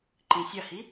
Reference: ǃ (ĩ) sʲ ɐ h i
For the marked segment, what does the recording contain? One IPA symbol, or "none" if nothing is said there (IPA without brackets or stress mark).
ĩ